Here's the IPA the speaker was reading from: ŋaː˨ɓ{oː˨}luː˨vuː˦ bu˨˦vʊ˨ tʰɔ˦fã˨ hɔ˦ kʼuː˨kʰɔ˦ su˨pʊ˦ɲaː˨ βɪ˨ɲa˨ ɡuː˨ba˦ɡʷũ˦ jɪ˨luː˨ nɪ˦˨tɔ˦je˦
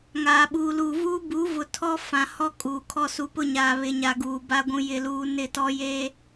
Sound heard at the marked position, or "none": uː˨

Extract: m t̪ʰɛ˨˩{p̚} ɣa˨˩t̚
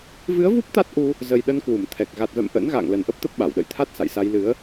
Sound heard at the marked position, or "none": k̚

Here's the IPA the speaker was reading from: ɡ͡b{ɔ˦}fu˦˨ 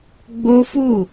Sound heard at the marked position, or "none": o˦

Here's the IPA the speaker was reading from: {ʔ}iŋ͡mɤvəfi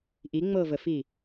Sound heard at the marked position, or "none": ʔ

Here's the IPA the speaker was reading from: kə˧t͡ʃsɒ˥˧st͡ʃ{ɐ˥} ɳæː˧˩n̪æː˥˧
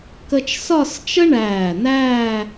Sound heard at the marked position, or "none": ə˥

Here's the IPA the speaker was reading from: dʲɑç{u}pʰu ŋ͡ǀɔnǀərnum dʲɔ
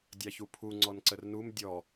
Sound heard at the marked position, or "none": u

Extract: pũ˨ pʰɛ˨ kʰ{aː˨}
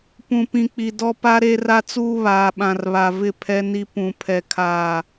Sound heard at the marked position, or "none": aː˦˨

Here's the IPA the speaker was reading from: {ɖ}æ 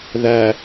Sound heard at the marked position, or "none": ð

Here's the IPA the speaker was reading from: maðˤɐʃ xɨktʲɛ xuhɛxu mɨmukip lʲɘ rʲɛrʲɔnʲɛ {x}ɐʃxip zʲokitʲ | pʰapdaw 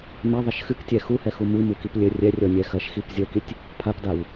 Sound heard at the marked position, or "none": x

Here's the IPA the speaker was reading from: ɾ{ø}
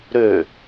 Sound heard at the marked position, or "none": ø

